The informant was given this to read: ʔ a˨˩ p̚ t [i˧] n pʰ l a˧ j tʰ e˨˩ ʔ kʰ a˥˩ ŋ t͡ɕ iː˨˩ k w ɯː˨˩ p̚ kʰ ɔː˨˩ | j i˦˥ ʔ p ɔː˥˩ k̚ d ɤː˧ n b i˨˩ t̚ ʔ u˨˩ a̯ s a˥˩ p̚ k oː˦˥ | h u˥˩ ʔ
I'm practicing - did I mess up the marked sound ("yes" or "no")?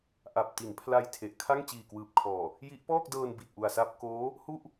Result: yes